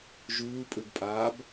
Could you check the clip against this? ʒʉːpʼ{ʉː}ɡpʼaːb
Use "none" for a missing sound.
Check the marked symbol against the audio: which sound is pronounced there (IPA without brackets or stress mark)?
ʉ